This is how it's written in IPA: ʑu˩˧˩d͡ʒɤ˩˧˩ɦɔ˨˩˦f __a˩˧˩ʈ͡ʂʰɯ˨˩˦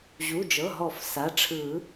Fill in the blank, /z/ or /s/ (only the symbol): s